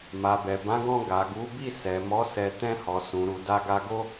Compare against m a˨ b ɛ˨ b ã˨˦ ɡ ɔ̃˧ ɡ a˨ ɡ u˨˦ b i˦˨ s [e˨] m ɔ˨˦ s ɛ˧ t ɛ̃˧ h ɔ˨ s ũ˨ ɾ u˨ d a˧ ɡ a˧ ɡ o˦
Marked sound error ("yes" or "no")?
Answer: yes